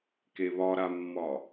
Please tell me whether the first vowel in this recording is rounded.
no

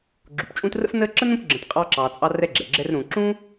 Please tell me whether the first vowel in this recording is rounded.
yes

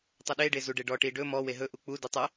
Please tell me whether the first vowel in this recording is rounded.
no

